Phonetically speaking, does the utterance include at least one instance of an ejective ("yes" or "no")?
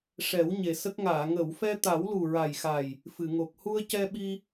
no